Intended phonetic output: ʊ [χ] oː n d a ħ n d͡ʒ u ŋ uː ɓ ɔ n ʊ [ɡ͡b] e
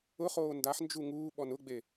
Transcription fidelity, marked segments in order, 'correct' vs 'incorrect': correct, correct

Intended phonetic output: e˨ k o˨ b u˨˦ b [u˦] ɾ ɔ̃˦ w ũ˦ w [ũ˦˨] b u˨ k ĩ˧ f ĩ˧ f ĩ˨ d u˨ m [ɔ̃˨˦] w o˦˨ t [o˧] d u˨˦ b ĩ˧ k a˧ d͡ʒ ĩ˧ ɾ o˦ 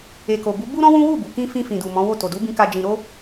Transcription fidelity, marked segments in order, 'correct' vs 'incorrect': correct, incorrect, correct, incorrect

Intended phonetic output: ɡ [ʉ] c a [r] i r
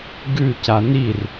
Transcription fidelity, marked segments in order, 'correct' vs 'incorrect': correct, incorrect

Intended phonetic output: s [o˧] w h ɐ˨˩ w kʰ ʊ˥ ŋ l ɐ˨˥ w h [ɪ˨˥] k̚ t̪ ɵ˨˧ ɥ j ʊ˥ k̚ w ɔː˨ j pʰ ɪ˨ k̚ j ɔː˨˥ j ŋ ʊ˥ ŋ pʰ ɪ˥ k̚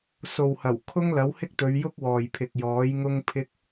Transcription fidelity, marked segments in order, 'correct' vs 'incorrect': incorrect, incorrect

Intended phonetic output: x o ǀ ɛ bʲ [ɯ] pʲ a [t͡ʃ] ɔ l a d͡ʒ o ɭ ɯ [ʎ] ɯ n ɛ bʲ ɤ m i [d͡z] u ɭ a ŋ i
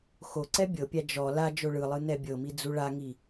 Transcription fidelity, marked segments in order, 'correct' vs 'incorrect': incorrect, incorrect, incorrect, correct

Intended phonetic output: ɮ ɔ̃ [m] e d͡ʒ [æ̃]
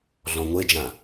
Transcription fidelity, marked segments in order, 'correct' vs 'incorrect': incorrect, incorrect

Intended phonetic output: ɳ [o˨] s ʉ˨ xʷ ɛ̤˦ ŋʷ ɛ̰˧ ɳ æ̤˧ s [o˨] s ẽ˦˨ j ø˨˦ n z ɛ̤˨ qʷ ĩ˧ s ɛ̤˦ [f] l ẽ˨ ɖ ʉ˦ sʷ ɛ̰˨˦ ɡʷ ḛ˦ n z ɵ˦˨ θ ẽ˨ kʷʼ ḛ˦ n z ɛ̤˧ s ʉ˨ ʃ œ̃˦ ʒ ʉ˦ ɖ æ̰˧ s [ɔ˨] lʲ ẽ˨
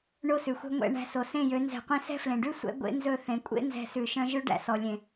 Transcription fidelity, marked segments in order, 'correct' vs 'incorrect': incorrect, correct, correct, correct

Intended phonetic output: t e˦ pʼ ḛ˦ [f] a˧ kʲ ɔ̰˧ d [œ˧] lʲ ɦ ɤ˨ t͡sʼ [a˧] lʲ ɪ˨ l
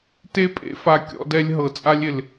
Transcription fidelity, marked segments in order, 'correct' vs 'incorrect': correct, incorrect, correct

